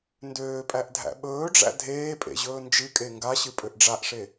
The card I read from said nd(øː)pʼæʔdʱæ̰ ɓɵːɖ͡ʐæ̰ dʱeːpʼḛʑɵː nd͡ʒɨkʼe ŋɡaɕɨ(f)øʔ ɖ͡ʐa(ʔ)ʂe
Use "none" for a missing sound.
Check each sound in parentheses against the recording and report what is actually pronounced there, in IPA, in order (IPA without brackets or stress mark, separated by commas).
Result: øː, pʼ, ʔ